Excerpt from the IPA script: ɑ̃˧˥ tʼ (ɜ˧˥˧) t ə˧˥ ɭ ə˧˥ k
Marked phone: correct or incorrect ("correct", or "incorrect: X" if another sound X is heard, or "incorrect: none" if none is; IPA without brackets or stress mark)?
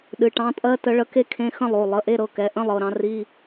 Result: correct